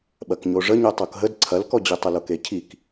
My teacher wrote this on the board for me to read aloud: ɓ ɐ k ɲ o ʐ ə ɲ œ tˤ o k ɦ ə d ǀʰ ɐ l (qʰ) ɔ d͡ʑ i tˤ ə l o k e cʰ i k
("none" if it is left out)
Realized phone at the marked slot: k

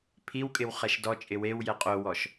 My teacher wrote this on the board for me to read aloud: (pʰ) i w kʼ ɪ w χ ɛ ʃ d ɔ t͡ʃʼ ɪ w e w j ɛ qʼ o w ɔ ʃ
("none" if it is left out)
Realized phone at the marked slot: pʰ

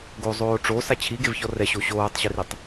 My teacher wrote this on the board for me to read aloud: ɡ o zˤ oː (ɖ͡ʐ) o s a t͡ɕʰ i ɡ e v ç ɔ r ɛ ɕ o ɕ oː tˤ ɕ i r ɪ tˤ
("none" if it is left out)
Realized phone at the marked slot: ʈ͡ʂ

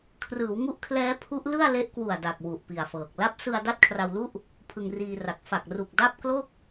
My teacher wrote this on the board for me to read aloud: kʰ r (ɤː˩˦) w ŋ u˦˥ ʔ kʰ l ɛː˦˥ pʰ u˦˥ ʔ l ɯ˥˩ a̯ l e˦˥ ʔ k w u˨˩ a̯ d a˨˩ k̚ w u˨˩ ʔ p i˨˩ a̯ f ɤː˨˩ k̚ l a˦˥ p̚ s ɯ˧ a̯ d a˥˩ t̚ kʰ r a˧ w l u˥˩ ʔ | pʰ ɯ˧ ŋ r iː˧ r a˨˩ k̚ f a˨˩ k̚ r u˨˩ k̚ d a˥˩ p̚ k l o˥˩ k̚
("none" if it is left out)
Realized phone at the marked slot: ɯː˩˦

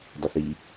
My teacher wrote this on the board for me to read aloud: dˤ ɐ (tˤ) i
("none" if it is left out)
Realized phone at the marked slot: θ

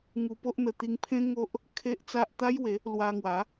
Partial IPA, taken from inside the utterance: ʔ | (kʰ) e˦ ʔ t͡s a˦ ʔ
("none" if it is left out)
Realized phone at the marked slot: kʰ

